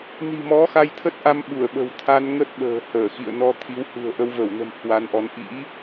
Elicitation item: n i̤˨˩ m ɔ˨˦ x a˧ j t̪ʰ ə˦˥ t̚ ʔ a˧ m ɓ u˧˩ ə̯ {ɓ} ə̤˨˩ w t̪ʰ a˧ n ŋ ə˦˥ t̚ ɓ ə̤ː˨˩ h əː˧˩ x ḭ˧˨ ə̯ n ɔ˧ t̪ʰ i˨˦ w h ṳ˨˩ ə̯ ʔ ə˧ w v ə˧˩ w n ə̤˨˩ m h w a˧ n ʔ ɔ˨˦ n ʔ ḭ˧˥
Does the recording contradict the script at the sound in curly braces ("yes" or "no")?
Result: no